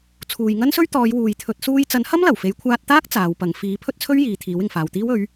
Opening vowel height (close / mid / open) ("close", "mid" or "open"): close